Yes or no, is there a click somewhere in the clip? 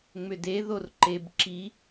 yes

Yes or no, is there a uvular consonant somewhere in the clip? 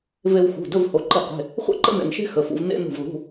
yes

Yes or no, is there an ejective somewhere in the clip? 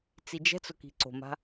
no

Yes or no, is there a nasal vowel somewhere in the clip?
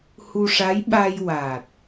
no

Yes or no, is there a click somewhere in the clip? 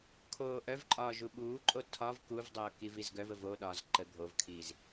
yes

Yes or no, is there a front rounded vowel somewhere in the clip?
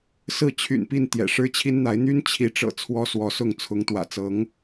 yes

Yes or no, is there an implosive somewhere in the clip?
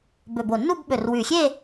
yes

